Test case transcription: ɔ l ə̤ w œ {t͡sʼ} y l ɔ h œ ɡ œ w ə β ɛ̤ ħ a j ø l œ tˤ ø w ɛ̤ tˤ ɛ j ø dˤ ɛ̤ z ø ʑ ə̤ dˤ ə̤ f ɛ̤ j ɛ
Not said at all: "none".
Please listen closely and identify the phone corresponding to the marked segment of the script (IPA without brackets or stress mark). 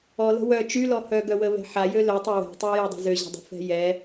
t͡ʃ